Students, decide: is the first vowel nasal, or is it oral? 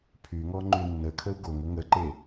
oral